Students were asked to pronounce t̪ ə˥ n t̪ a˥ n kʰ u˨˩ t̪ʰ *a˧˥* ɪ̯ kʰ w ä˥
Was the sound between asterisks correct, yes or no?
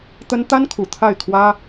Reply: no